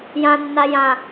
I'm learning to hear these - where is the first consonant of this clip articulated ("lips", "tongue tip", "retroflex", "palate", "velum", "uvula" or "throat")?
palate